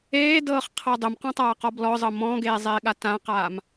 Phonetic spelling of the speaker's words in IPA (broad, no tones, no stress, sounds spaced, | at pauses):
eː d ɤː χ qʰ ɤ dˤ ɘ m q ɔ̃ tˤ aː q ɔ b l ɔ zˤ ɤ m ɔ̃ ɡ eː zˤ eː ɠ a t ã q aː m